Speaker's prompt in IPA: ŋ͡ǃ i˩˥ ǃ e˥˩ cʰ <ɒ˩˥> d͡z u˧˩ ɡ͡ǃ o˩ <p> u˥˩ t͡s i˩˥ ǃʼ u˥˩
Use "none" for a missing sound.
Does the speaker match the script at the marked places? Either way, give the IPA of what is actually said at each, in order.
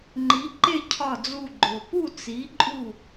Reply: ɒ˧˩, p

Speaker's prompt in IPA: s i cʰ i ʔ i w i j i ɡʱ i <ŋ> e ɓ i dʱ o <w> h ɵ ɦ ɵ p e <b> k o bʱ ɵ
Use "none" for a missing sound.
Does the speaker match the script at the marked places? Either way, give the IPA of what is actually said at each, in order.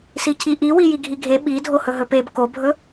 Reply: ɡʱ, none, b

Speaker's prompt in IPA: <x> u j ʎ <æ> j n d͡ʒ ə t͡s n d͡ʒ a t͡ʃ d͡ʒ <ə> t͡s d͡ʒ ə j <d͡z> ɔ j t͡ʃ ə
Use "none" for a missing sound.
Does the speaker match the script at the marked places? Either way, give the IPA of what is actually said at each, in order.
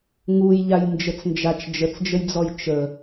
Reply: ŋ, a, ə, d͡z

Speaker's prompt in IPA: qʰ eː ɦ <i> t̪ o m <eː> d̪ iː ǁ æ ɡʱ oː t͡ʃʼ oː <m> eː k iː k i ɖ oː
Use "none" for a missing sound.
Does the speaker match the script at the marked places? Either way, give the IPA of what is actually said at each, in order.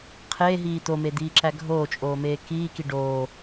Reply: iː, e, m

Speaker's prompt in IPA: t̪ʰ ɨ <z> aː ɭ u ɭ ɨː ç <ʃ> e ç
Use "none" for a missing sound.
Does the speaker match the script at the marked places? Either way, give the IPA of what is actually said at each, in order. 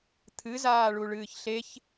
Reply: z, ɬ

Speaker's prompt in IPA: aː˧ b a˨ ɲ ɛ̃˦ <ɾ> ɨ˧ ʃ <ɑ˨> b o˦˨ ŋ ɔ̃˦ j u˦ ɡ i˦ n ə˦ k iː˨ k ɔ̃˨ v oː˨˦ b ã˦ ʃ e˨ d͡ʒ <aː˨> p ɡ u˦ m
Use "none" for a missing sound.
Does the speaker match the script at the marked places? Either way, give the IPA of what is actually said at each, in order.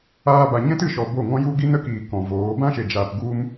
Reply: t, ɔ˨, aː˨

